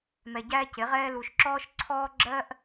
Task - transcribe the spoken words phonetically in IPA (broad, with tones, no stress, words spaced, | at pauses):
mɛ˨ɟæː˦cɪ˨˦ʁɛː˦ lu˨ʃǁɔː˦ʃǀʰɔː˦ ɡ͡ǁɜ˦ʔ